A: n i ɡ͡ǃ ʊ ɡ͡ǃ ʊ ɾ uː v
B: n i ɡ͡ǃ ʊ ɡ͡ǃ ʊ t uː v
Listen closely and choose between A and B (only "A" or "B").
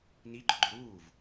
A